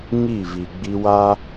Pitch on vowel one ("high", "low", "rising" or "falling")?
falling